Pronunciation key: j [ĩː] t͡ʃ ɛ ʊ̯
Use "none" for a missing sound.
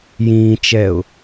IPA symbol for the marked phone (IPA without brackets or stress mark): ĩː